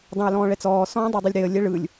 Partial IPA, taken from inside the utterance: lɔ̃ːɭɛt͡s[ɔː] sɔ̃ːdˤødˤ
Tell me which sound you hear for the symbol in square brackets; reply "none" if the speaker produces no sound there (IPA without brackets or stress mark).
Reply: ɔː